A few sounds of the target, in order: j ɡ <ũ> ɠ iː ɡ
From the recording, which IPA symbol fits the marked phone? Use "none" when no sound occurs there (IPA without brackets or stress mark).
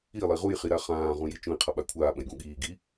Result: ũ